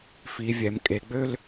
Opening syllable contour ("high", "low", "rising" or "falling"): low